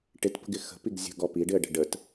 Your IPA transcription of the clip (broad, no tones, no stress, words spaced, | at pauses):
ʈɪtpə̤ɡɪ xə̤piɡ zʲə̤ɡɔ piɖɪə̯ɖə̤ ɖət